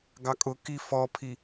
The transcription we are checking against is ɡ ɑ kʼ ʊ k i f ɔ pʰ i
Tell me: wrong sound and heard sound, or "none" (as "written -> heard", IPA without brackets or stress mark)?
none